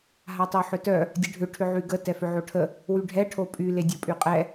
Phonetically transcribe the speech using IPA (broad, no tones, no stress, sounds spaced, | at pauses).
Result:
ɦ a tˤ o ħ ʏ t œ | dʲ ə ɖʱ ʏ ʈʰ ʏ ʕ y ɡ ə t ɛ f ʏ ʕ o ʈʰ ə | w y ɖʱ ɛ ʈʰ o pʼ y l e dʲ o pʼ y qʼ ɛ